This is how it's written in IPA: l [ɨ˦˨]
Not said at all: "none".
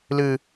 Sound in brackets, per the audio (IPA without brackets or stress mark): ɨ˨